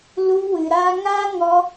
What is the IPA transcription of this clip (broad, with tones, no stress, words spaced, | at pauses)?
lu˧wɨ˨ɾaː˧ŋaː˦ ŋɔ˧